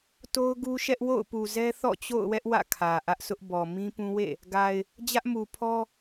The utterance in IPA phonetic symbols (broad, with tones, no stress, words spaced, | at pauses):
to˦ʊ̯ɡu˦ʃɛ˦ʔ wo̰˦˨ʊ̯pu˨zɛ˦ θɔ̰˦˨t͡ɕo̰˦˨ʊ̯wɛ˦ʔ wä̰˦˨kʰä˨ʔä˦ʔsʊ˦ʔ bɔ˨ mĩ˦pũ˦wḛ˦˨ | ɡa˨ɪ̯ | d͡ʑä˦ʔmu˨pʰɔ˦